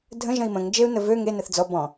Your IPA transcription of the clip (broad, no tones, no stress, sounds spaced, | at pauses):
dʱ ə̃ ʒ ə̃ i̯ m ə̃ ŋ d͡ʒ e u̯ n ə v ø ŋ e n ə θ d͡z ɔ b ɔ̃